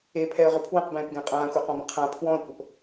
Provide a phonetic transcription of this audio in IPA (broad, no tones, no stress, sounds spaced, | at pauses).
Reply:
e pʰ ɛ ə̯ ʁ ʏ pʰ w ə̃ q b ɛ̃ː p ɡ ɛ̃ qʼ ãː xʷ ɛ q ɔ̃ b ə̃ qʰ ã pʰ w ɔ̃ ə̯ kʷ ə p